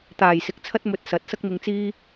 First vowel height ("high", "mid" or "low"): low